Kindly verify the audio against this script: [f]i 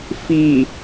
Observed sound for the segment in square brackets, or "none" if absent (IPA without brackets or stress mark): f